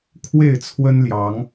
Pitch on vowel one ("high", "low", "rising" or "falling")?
falling